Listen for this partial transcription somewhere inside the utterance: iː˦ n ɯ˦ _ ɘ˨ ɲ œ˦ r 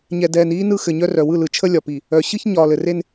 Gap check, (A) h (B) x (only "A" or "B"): B